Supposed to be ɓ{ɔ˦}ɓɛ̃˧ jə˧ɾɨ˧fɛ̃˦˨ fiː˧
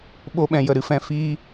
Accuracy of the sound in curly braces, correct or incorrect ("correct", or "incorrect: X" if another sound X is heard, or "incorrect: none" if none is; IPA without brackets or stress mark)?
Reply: incorrect: o˦